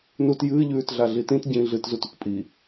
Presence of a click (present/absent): absent